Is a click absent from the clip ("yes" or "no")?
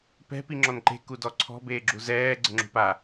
no